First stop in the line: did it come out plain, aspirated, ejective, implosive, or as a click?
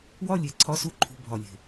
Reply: click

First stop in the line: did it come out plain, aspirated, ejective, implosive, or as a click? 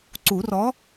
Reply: click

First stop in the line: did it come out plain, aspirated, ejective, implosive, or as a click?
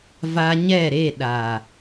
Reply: implosive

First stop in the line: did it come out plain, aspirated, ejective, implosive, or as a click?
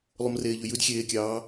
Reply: plain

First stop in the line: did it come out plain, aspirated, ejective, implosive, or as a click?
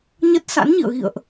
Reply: plain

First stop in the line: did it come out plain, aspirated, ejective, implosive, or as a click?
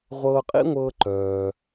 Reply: ejective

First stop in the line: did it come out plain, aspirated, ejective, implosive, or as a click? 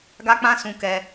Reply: plain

